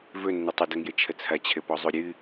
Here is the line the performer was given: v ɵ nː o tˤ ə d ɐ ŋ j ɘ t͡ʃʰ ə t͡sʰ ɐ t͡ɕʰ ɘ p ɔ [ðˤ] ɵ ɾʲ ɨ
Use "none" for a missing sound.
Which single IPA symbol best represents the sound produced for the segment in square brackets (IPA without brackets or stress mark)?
zˤ